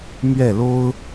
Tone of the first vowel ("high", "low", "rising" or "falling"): falling